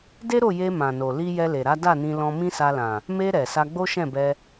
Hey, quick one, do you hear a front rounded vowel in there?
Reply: no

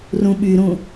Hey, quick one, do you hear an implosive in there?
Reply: yes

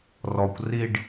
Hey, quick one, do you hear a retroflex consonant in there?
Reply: yes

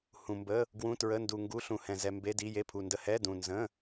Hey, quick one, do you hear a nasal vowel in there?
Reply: yes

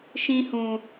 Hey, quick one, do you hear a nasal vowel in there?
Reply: yes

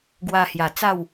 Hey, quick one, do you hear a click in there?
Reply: no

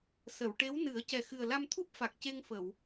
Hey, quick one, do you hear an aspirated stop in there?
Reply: yes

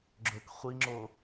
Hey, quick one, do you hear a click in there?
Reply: yes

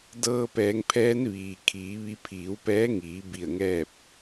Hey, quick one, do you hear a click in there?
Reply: no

